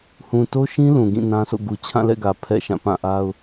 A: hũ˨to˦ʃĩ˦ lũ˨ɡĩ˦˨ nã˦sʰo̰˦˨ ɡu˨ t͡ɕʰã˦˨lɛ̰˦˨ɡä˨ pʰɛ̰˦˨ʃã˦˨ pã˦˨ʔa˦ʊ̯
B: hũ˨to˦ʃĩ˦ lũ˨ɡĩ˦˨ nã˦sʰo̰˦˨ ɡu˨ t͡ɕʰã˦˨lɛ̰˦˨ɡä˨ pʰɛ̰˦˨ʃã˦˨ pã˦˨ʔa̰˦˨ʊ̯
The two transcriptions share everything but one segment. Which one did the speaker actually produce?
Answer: A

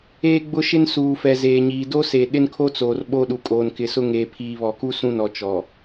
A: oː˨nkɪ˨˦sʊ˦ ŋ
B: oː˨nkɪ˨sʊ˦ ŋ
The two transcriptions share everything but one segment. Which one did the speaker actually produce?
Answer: B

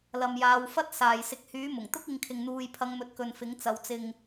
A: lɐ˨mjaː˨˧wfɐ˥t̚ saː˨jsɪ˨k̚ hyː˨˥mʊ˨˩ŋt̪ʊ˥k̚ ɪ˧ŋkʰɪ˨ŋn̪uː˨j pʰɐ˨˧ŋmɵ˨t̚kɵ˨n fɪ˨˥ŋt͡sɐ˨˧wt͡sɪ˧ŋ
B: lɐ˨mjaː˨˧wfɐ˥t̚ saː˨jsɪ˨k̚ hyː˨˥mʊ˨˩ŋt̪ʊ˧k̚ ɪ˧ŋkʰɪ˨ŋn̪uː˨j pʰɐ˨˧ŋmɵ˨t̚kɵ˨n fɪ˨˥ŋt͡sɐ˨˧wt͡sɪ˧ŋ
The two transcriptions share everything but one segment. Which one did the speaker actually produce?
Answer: A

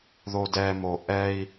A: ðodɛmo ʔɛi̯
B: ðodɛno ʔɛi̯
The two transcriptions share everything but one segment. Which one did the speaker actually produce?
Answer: A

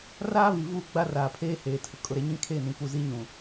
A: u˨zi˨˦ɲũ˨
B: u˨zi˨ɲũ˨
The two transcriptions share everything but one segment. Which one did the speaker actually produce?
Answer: A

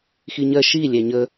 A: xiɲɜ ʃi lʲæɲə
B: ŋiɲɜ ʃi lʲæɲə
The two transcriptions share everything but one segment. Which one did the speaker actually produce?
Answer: A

